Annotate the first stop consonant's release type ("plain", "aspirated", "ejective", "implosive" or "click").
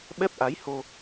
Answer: implosive